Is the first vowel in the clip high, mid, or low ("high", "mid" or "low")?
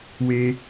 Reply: mid